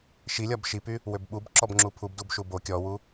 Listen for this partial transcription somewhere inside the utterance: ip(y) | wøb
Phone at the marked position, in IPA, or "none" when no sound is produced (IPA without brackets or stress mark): y